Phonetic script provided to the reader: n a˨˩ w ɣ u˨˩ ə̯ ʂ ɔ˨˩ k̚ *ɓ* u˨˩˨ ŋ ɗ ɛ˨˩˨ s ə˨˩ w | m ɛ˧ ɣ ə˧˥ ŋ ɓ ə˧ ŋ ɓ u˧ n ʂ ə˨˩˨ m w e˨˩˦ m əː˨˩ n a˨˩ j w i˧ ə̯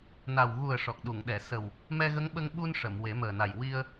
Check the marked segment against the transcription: incorrect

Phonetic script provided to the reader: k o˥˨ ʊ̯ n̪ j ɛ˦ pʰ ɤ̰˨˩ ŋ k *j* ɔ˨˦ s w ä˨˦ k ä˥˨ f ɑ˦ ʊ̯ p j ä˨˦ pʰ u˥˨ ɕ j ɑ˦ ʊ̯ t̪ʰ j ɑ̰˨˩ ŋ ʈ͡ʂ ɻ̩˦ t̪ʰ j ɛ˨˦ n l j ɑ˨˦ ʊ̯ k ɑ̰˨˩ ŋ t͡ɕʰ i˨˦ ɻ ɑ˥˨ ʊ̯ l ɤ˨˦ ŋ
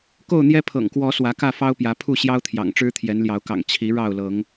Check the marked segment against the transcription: incorrect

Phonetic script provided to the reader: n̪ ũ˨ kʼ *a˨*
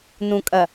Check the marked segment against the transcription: incorrect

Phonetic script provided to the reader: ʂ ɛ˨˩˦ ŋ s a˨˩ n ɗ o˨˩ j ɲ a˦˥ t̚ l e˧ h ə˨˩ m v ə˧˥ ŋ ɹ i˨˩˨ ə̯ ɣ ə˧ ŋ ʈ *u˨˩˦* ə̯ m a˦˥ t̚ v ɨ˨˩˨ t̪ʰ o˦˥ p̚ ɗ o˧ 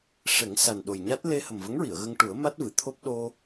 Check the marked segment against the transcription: correct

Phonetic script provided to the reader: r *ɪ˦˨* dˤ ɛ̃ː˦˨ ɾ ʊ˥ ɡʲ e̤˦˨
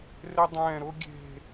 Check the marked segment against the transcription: incorrect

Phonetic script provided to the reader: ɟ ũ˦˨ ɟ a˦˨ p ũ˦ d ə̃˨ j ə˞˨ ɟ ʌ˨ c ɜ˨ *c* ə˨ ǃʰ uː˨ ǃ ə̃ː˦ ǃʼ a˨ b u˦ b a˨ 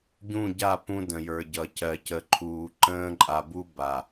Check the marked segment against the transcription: correct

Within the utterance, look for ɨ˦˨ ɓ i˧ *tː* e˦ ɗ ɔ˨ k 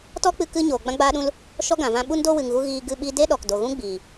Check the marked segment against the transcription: incorrect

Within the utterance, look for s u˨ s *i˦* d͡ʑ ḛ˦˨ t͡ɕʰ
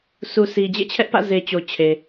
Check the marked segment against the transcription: incorrect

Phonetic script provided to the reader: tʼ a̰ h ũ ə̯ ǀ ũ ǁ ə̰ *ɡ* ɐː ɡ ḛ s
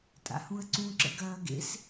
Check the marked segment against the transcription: correct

